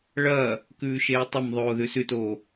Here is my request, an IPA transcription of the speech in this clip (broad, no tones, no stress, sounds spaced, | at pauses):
ɭ ɐː | k ʉː ʃ eː tˤ ɐ m ðˤ oː ð ʉ s ʉ t o